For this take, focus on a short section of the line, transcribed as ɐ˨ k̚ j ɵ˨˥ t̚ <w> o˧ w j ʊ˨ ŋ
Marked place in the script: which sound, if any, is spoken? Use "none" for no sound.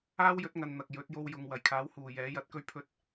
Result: j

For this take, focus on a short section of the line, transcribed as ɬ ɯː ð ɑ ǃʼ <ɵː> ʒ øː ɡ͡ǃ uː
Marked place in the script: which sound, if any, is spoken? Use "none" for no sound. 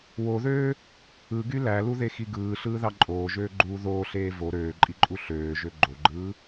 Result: oː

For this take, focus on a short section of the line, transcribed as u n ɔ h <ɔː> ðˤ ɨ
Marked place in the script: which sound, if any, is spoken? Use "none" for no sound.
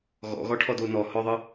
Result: ɔ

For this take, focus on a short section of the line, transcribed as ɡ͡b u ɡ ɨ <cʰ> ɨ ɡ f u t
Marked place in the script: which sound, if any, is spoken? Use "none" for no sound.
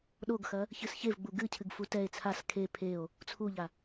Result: cʰ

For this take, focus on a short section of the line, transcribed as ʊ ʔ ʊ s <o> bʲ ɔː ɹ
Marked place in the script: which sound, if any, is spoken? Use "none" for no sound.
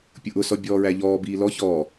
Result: ɔ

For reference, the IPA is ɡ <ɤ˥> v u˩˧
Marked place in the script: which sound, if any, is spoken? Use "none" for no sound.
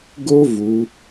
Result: o˥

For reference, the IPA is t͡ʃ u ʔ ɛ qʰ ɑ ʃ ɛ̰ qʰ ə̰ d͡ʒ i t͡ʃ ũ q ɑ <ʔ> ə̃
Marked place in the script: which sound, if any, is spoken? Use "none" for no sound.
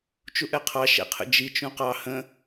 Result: h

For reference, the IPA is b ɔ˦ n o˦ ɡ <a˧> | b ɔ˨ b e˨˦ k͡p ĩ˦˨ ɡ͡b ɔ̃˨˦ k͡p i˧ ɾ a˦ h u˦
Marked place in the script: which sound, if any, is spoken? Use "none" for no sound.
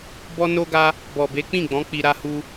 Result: a˦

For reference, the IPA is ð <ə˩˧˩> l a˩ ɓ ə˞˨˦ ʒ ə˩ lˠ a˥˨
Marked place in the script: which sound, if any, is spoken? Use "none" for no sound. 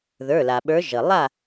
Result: ə˞˩˧˩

